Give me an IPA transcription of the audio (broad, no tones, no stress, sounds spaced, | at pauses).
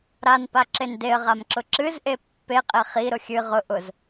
ɾ a n p a ǁ e n d e ə̯ ʁ a m ǁ ʊ ǁ ɨ z ʔ e pː e qʼ e χ i ɾ ʊ xʲ ɨ ʁ ʊ ʔ ʊ z